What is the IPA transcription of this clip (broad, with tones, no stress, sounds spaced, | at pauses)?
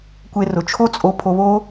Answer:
kʷ e˧ r ʊ˨ t͡ʃʰ o˦ t͡sʼ o˧ pʰ o˧ β o˦